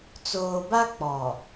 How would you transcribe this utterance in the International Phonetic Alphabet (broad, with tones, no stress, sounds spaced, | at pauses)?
t͡s oː˨ b a˦ k͡p ɔ˨